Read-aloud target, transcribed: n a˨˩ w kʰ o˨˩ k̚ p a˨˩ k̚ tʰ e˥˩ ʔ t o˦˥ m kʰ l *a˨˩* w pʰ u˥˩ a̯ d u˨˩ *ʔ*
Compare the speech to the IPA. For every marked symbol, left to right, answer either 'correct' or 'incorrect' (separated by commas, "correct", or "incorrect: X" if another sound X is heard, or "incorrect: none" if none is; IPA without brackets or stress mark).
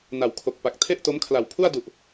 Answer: correct, correct